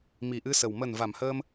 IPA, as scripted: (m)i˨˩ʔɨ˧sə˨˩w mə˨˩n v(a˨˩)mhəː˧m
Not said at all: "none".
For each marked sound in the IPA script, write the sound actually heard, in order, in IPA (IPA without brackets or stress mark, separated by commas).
m, a˨˩